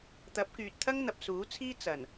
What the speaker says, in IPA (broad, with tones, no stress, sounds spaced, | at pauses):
t̪ ɐ˨˥ p̚ k yː˨ t̚ t̪ʰ ɐ˥ ŋ n̪ ɐ˨ p̚ s uː˨˥ t͡sʰ iː˥ t͡s ɐ˨˩ n